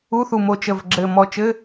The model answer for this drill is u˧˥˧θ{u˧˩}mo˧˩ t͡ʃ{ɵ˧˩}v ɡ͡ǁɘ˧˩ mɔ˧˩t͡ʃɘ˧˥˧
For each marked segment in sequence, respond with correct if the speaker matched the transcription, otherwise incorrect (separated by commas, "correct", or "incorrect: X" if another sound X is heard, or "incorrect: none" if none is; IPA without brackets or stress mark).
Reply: correct, incorrect: ə˧˩